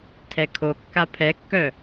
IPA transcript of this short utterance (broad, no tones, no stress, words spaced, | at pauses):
tʰɛkʰokːa pʰɛkːœ